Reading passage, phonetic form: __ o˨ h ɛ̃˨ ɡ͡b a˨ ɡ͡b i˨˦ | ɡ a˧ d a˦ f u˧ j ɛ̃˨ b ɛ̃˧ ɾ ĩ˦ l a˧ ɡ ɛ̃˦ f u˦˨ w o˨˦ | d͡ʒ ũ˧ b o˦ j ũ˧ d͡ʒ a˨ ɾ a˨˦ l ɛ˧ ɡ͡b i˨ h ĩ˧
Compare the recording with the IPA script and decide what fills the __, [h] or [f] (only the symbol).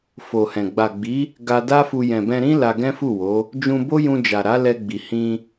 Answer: f